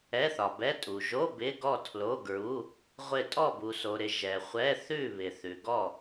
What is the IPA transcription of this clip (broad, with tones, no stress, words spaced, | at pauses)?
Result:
ɛ˧˥˧θɒ˨bɛ˧˥˧ tʼu˨ ʒo˧˥˧ bɪ˧˥˧ɡɔ˥˨tʰlo˧˥˧ɡɹu˧˥˧ | ʁʷɪ˥˨ tʼɔ˥˨bu˨so˨ ɾɪ˨ ʒɛ˨χʷɛ˧˥˧θʉ˥˨ βɪ˨θʉ˨ɡɔ˥˨